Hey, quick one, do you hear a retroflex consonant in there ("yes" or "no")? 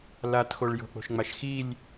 yes